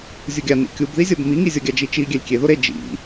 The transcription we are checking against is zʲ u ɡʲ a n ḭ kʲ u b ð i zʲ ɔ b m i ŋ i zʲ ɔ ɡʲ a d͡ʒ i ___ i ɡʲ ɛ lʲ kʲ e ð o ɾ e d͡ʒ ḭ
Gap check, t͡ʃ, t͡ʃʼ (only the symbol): t͡ʃ